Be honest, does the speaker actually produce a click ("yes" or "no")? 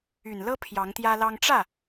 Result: no